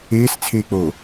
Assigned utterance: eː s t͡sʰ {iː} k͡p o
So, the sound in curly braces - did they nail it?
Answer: no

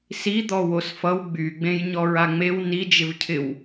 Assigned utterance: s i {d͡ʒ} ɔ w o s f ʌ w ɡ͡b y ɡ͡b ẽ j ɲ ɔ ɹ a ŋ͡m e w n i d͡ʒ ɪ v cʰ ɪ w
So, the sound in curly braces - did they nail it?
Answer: no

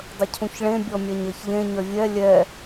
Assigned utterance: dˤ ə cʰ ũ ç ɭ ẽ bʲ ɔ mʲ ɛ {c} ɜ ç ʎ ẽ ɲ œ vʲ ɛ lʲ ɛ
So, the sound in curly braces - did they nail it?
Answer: no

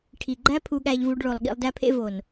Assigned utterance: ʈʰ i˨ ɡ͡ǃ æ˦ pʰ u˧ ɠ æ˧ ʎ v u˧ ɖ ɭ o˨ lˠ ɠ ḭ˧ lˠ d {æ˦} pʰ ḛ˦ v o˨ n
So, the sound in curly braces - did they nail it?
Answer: yes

